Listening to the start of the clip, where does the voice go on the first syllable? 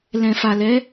low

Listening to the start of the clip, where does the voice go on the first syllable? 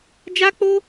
high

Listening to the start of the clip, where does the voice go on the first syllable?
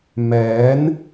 rising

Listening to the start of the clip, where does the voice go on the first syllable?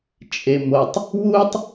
low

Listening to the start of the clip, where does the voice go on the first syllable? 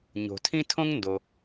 low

